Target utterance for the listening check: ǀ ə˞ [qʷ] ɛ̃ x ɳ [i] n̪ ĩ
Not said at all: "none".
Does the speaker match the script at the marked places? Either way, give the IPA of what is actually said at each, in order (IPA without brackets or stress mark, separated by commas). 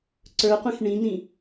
qʷ, ĩ